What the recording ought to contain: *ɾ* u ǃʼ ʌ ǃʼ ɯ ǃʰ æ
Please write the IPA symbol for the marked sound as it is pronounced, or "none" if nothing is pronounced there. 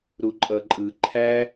ɾ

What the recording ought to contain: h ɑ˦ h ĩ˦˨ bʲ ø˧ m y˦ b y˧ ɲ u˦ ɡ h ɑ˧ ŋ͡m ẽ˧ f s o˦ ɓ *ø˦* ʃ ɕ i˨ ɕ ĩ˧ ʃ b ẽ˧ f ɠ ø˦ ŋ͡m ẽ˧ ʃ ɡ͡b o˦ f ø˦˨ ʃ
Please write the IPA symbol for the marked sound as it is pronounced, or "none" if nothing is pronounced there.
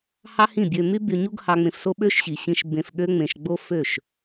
ø˦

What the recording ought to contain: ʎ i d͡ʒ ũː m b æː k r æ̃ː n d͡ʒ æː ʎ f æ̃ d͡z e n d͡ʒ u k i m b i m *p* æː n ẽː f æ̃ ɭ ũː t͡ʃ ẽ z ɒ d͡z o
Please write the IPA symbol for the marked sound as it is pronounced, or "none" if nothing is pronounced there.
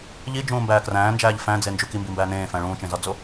b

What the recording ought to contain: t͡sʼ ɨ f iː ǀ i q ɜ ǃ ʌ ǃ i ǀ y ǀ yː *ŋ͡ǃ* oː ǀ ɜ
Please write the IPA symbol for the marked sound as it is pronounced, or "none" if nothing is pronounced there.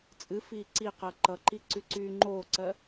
ŋ͡ǃ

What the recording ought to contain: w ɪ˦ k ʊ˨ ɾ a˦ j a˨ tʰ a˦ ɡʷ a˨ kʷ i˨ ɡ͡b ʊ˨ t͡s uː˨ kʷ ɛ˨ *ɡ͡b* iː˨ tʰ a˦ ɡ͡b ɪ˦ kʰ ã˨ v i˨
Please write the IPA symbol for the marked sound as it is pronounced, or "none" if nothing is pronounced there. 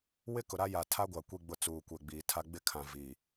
ɡ͡b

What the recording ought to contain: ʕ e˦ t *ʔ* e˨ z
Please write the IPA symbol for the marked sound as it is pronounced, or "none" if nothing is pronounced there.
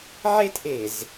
ʔ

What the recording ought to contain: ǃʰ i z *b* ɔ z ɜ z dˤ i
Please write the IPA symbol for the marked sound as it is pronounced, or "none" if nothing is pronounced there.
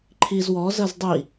w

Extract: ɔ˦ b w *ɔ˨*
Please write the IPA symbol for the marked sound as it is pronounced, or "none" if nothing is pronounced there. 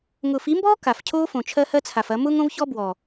ɔ˨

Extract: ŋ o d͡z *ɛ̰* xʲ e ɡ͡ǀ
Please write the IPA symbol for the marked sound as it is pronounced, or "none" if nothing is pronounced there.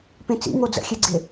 ə̰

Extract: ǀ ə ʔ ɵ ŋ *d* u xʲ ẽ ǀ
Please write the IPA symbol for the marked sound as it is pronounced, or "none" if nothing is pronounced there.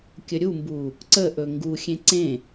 ɡ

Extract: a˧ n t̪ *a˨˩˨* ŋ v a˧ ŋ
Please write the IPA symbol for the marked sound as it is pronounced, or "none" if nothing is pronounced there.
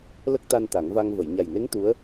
a˨˩˦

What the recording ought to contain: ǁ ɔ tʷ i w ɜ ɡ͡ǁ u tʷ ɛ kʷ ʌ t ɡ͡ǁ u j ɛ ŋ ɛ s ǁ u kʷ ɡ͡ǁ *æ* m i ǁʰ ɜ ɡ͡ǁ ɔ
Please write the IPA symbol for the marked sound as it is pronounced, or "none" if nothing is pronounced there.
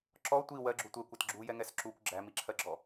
æ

